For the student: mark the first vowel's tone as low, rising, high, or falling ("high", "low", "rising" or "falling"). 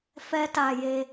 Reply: high